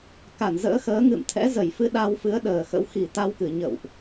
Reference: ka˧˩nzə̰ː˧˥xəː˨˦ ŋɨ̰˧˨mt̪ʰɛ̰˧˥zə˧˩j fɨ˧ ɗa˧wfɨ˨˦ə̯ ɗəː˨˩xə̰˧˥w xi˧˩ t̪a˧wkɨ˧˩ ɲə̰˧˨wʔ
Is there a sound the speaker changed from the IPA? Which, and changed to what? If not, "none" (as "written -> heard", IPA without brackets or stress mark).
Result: none